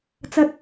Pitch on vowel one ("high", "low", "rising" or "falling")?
high